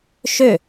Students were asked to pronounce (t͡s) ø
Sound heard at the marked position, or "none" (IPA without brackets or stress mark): ʃ